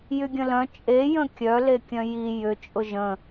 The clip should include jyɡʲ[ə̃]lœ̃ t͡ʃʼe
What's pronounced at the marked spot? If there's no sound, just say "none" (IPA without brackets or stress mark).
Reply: ə̃